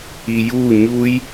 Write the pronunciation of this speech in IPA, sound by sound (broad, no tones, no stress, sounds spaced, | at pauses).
i j u ɲ u j